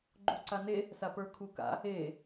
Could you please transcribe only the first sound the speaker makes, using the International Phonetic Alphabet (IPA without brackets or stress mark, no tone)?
ɡ͡ǃ